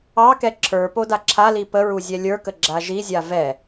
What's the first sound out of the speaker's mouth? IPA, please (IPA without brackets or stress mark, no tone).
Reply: ɑ